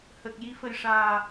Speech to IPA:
h ə˨˩ k̚ j i˧˥ f ə˨˩ j ʂ aː˨˩

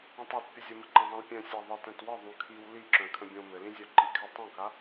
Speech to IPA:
õ tˤ œ t pʲ ə zʲ ə m ə ǃ ə̃ zˤ ĩ l pʲ œ̃ sʲ a ðˤ ə t œ̃ t w ə ðˤ ũ kʰ i w l i ǁ œ̃ kʰ ə̃ bʲ õ m ɘ l ĩ zʲ œ ǃ i kʰ ɘ tˤ õ k a

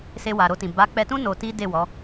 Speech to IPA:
s e˧ w a˨ ɾ o˧ t ĩ˨ b a˨˦ k͡p ɛ˧ t ũ˦ n o˧ t i˦ d e˦˨ w ɔ˨˦

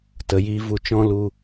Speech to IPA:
t ə˨ j iː˧ v u˧ t͡ʃ ɔ̃˦ l u˧

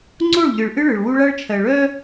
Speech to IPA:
ŋ͡ǀ o˦˨ ɭ ʎ ɨ˨ ɭ ʔ ɨ˦ ɭ ɨ˨ ɭ w u˦ ɭ a˦ ɭ t͡ʃʰ ɜ˨ ɭ œ˦

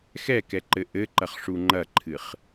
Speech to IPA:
x ɛ k ɛ ǃ ɘ ʔ ɘ ǃ ɐ χ ʂ u ŋ͡ǃ ɐ ǃʰ ɨ χ

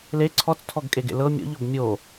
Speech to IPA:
l e ǀʰ ɔ t͡s tʰ ɔ ɡ kʼ e ɡ ḛ l ɤ mʲ ɔ̰ ʎ ɔ b mʲ o

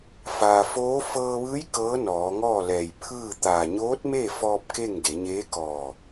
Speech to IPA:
f aː˩ f oː˧˥ f ɤː˧ ʋ ɯː˧˥ j k ɤː˧˥ n ɔː˩˧ ŋ ɔː˥˨ l ɛː˧˩ j pʰ ɯː˥˨ t̪ aː˧˩ ɲ oː˧˥ t̚ m e˥˨ f ɔː˧ p̚ k e˥˨ ŋ d e˩˧ ɲ eː˧˥ k ɔː˧˩

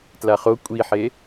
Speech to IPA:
t l a χ o kʷʼ i ħ e

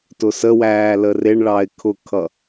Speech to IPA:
t ʊ s ə w æː l ə r ɪ ɳ ɭ ɑ ɪ̯ kʰ ʊ kʰ ʌ

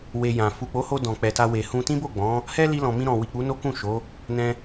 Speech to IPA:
w e˧ j ã˨ f u˨ k͡p o˨˦ h o˧ d ɔ̃˨ k͡p ɛ˨ t a˧ w e˨ h ũ˧ t ĩ˦ b o˦˨ ɡ͡b ɔ̃˨˦ | h ɛ˦ l i˧ l ɔ̃˨ m ĩ˧ ɾ ɔ̃˨ w i˨ k͡p u˨˦ n o˦ k ũ˦˨ ʃ o˨˦ | n ɛ̃˧

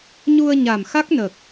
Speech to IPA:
ɲ u˧ ə̯ ɲ a˨˩ m x a˦˥ k̚ n ə˨˩ k̚

